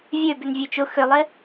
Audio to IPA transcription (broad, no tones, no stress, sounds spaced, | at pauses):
vʲ ø b ʏ n vʲ ø t͡ʃ ʊ x ʏ lˠ ɪ